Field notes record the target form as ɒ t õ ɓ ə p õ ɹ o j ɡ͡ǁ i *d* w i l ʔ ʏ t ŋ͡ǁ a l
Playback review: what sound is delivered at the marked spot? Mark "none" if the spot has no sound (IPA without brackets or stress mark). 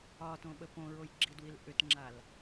d